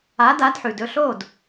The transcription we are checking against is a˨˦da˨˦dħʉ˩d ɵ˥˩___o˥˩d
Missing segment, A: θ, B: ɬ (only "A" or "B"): B